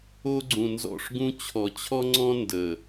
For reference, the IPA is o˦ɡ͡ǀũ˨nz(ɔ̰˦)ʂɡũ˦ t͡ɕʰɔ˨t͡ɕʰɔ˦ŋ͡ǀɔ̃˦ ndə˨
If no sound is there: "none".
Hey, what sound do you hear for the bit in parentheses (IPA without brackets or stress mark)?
ɔ̰˦˨